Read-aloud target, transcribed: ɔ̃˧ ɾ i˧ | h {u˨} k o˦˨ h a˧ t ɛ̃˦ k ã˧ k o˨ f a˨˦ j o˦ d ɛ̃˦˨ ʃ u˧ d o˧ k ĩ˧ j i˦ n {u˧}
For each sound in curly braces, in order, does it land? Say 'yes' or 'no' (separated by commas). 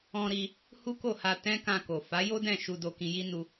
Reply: no, yes